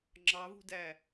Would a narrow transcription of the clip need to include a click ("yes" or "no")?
yes